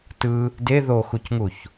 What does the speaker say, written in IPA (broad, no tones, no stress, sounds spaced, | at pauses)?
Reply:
t ɯ | d e ð o x u c ŋ u ç